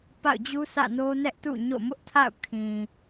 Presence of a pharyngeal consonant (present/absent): absent